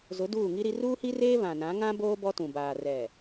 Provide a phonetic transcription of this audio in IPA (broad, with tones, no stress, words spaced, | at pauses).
zʊ˨˦ duː˦˨ŋi˦ɾi˦ ruː˦hi˦reː˦ βã˨nã˨˦ ŋã˦boː˦ bɔ˦tũ˨ baː˨ rɛ˨